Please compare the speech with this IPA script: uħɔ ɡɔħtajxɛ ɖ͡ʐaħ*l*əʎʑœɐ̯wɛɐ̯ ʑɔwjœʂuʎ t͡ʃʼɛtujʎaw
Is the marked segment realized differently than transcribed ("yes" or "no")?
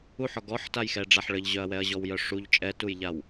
yes